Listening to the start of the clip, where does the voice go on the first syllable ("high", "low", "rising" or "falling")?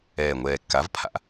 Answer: low